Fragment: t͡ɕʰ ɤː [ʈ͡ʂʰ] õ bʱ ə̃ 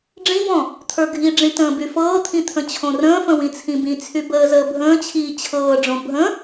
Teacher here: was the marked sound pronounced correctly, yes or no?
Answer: no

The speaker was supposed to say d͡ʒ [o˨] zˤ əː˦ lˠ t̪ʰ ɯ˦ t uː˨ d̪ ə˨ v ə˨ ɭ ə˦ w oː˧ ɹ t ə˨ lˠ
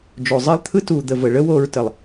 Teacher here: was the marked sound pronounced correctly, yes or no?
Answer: yes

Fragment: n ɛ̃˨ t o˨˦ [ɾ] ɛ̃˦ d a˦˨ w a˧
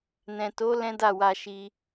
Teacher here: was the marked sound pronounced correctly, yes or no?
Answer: no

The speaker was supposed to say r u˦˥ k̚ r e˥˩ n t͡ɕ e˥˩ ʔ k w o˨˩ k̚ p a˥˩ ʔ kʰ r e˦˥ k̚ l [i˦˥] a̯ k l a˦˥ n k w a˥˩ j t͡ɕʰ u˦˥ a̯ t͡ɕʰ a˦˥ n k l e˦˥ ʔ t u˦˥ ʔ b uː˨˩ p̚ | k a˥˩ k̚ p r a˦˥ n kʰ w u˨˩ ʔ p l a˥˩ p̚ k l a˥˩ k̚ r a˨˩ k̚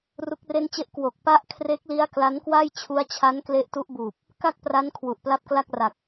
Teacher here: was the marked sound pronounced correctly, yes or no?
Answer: yes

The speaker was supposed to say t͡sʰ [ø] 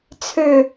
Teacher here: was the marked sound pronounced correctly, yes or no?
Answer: yes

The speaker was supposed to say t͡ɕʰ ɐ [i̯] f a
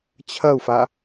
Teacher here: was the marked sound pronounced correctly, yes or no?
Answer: no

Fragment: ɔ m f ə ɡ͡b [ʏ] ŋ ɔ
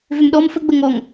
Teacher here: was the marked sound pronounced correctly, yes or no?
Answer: no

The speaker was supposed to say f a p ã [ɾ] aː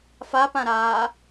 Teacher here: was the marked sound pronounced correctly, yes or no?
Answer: yes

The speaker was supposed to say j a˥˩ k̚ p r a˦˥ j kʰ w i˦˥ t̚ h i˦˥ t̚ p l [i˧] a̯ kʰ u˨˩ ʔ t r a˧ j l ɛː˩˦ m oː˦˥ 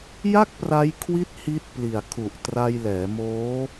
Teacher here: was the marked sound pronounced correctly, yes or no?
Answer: no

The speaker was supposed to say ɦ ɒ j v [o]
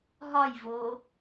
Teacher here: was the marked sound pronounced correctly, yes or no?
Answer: yes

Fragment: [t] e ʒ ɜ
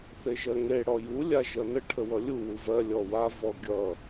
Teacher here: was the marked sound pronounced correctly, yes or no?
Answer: no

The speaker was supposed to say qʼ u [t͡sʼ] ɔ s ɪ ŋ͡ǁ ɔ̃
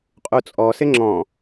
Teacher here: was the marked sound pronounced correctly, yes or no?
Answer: yes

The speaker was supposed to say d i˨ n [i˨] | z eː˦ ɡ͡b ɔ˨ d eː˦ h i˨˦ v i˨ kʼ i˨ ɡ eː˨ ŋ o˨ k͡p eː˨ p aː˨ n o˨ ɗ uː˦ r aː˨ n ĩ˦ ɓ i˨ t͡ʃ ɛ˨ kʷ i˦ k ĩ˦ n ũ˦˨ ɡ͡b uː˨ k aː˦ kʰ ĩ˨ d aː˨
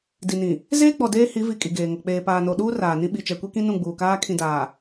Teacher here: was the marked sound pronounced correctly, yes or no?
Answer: no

